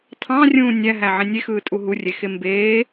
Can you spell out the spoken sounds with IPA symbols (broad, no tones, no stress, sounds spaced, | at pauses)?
tʰ ɑ̃ rʲ ũː nʲ æ ɦ æ ʕ ẽ nʲ e x ɯː tʼ u ɦ u rʲ e x e m b eː